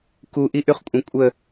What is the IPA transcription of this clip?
k u ʔ i ʔ y χ kʷʼ ə̃ kʷʼ ə

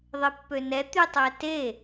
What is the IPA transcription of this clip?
ðˤ e pː ø n ɛ t̪ y tˤ ɛ t e

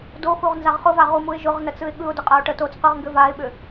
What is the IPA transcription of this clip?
d o x u ʁ n z a ʁ χ ʊ v a ʁ u m u ɪ̯ ʒ ʊ ʁ n ə t͡s ɯ ɪ̯ ɠ ɯ ʊ̯ d ʊ qʼ a ʊ̯ ʈ ə t o t͡s q ɯ ʁ ŋ ɡ ʏ v a ɪ̯ ɓ ʏ

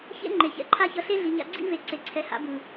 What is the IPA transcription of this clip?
ç ḛ˦ ŋ͡ǃ e˨ ç ɛ̰˨ ǃʰ a˦ ç ʌ˧ ɬ e˦ ɮ i˨ ɲ a̰˧ ɡ͡ǀ ḭ˦ v e˨ ǀ e˨ ǀʰ ɛ˨ h a̰˨˦ b ɯ˨

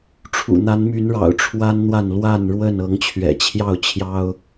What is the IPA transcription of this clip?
ʈ͡ʂʰ ṵ˨˩ n̪ a˨˦ n m y˨˦ n ɻ ɑ̰˨˩ ʊ̯ ʈ͡ʂʰ w a˦ n n̪ w a˥˨ n l w a˥˨ n ɻ w ə˥˨ n ɤ˨˦ ŋ t͡ɕʰ ɥ ɛ̰˨˩ t͡ɕʰ j ɑ˥˨ ʊ̯ t͡ɕʰ j ɑ˦ ʊ̯

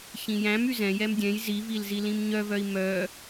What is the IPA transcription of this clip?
ç ĩ j æ̃ m y z ɛ̃ j ɛ m dʲ ɛ̃ j z i v i l z i l ĩ m ɲ œ v œ i̯ m œ

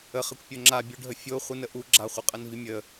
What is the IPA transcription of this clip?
ə χ ɘ kʷ pʲ o ŋ͡ǁ a bʲ u ɖʱ ə fʲ o χʷ ə n ə ʔ u ɡ͡ǁ a χʷ ɘ qʼ ə n v i mʲ ə

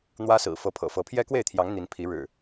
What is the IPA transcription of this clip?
n̪ w ä˦ s ɹ̩˨˩ f ɤ˨˦ pʰ ɤ̰˨˩ f ɤ˨˦ pʰ j ɛ˦ k w e˥˨ ɪ̯ t̪ʰ j ɑ˨˦ ŋ n̪ i˨˦ n pʰ i˨˦ ɻ ɻ̩˨˩

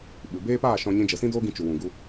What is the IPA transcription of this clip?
ɓ ɨ˨ b eː˦ p aː˦˨ ʃ ɔ̃˧ ɲ ĩ˧ d͡ʒ ə˨ s ĩ˦ d oː˦ ɡ ĩ˧ t͡ʃ u˨ w ũ˨ ɡ u˧

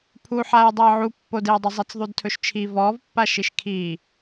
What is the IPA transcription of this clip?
pʰ u ħ aː j dˤ iː ʕ u pː o d eː dˤ ɵ zˤ e t͡s ðˤ u d tʰ ɵ ʃ t͡ʃʰ i v ɔː v pː a ʃ i ʃ kʰ iː

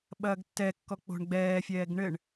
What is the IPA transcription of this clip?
ɓ ɐː ɡ tː ɛ kː ɔ k͡p o̤ ɳ ɡ͡b ɛː fʲ ɛː ɡ ɳ ɘ ɳ

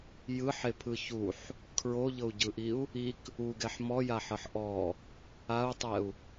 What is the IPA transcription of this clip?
j ɯ ħ e pʰ ɯ ç u ħ | kʰ ɹ o ʎ ɤ u̯ ɟ ɯ ʔ i u̯ | i k | u ɡ ɛ ħ m ɔ j a ħ ɤ ħ ʔ ɔ | a u̯ tˤ ɛ u̯

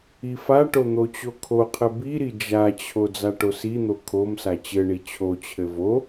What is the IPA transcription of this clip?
i f a ʈ o n̪ o t͡ɕ o kʰ o qʰ ɘ b i ɾ i d͡ʒ a t͡ɕʰ o d͡z a ʈ o s i n̪ o kʰ o m s a t͡ɕ ɘ ɳ i t͡ɕʰ o t͡ɕʰ ɘ v o

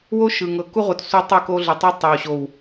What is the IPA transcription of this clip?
w o˦ ʃ ɯ˨ ŋ ɤ˨ k u˦ ʁʷ i˨ t sʷ ɛ˦ tˤ ɯ˦˨ k o˦ ɮ ɯ˨ tˤ i˦ tˤ ɛ˨ w ɕ o˨ w

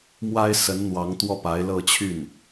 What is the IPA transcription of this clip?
m w a˥ ɪ̯ s ə˧˥ n n̪ w ɑ˧˥ ŋ t̪ w ɔ˥˩ p a˧˥ ɪ̯ l ɤ˥˧ t͡ɕʰ y˥˩ n

